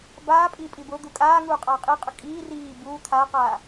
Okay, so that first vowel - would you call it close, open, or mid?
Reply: open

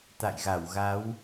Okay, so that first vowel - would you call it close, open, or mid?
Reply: open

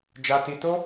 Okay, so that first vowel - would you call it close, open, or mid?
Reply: open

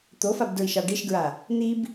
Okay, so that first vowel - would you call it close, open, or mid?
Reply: mid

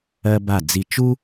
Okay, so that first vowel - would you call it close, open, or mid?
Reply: mid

